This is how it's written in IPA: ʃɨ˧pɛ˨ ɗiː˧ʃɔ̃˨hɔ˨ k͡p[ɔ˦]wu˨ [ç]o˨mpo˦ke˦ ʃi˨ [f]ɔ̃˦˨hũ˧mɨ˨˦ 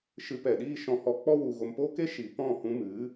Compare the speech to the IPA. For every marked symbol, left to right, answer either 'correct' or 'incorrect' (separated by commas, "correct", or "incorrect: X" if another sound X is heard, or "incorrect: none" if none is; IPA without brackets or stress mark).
correct, incorrect: ɣ, incorrect: p